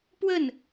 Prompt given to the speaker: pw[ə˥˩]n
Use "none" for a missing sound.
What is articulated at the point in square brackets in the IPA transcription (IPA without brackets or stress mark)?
ə˥˩